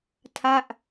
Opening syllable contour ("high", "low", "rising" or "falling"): falling